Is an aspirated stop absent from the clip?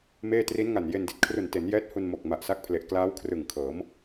no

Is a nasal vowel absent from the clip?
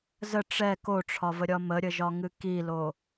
yes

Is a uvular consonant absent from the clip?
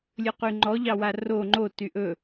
no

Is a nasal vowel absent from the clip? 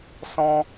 no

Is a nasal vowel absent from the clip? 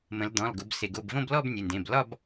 no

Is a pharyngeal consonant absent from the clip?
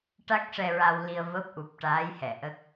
yes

